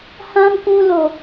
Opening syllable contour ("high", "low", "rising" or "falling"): high